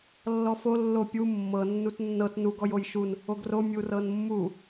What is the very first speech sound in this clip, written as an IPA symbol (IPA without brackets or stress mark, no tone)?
lː